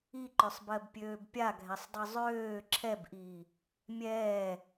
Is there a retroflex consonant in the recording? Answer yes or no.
no